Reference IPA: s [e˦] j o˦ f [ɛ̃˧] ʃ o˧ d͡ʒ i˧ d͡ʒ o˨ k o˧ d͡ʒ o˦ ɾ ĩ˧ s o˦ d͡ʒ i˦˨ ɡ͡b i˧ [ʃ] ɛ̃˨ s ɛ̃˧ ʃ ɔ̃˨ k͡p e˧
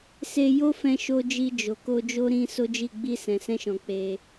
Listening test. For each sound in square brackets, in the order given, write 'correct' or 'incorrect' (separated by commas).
incorrect, correct, incorrect